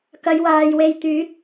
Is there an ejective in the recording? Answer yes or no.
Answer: no